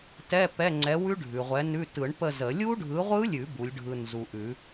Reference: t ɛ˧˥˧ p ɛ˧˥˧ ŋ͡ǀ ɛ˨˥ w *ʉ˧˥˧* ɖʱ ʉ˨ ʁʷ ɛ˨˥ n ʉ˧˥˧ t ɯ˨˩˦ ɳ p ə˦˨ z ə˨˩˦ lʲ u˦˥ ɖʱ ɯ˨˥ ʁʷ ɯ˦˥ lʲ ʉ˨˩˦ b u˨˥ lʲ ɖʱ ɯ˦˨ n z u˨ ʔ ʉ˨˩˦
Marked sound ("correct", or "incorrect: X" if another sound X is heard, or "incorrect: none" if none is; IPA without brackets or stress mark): incorrect: ʉ˦˥